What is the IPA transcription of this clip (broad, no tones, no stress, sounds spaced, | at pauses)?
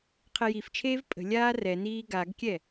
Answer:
qʰ ɛ j i f t͡ʃʰ eː v pʼ ə̤ lʲ aː r ɛ n iː ɡ a ɡ kʲ ɛ